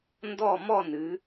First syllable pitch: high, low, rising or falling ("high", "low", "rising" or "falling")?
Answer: falling